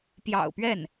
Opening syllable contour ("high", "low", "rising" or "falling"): low